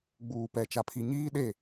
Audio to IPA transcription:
ɡ͡b uː˨ p ɛ˨ t͡ʃ a˨ pʰ i˨ ɲ iː˦ ɗ e˦˨

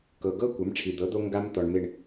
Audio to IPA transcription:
k ɤ˩ ɡ ɤ˦ kʷ a˩˥ m ʈ͡ʂʰ i˩ d̪ ɤ˩˥ d̪ o˦ ŋ ɡ a˦ m t̪ ɔ˩ ɳ m e˧˩ ɳ

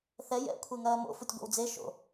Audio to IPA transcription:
θ ɛ j ɛ̰ kʷʰ e ŋ ɐː m o̰ f u tʲ ɡʷ ḛ w d͡z e ʃ o̰

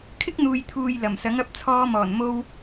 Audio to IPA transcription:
kʰ ɪ˥ k̚ n̪ uː˨ j t̪ʰ uː˨ j l ɐ˨˩ m s ɐ˨˥ ŋ ɐ˨˥ p̚ t͡sʰ ɔː˧ m ɔː˨˩ n m o˧ w

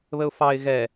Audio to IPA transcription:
β ə ʊ̯ f ɑ ɪ̯ ɣ ɛ

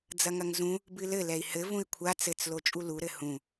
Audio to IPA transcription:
d͡z ɐ ŋ ɐ ŋ z ũ | b ɨ l ɘ l ɛ i̯ h ɘ v ũ i̯ kʷʰ a t͡s ɘ t͡s l o t͡ʃʼ u l u ɾ ɘ h ũ

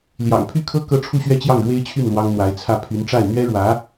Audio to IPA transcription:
l j ɑ̰˨˩ ŋ pʰ y˥˩ kʰ ɤ˥ k ɤ˥˧ ʈ͡ʂʰ u˥˧ ɕ ɥ ɛ˥˧ t͡ɕ j ɑ˥˩ ŋ ɻ w e˥ ɪ̯ t͡ɕʰ y˥˩ n l w ɑ˥ ŋ n̪ w a˧˥ ɪ̯ t͡sʰ ä˥˩ pʰ y˧˥ n ʈ͡ʂ a˥˩ ɪ̯ n̪ ɥ ɛ˥ ɻ w ä˧˥

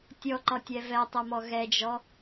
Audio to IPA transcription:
tʲ ɔ ǃ ɒ tʲ ɛ v ɛ tˤ ɛ m ɔ ɣ ɛ d͡ʒ ɔ

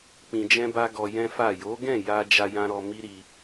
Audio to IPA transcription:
k͡p ĩ˧ d͡ʒ ɛ̃˦ b a˦ ɡ ɔ˧ j ɛ̃˦ f a˦˨ j o˨˦ ɡ ɛ̃˦˨ j a˧ d͡ʒ a˧ j ã˧ ɾ ɔ˧ m i˦ ɾ i˧

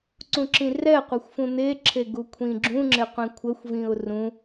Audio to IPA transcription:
ǀ ũ ǁ ĩ r ɛ qʷ ɛ xʷ f ũ n̪ e ǁʰ e ɡ u kʷʰ ĩ ɡ͡ǁ ũ ŋ͡ǁ e qʷ ĩ kʷʰ ə xʷ v ĩ ʊ̯ r ũ

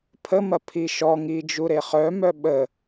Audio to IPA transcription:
pʰ ə m ɐ pʰ i ʃ ɔ ŋ i d͡ʒ u ɾ e χ œ m œ ɓ ə

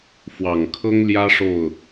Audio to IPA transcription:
f w ɑ˨˩ ŋ kʰ ɤ˥ ŋ l j ä˥ ʂ o˥˩ ʊ̯

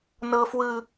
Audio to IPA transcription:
n ɤ˨ f w ɯ˨

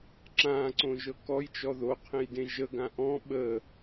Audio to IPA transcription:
ǁ ã ǀ õ ʒ ɤ k ɔ j t͡ʃ ɔ ð o qʰ ẽ j d ẽ ʒ ə ɡ ã ʔ ɔ̃ ɓ ə

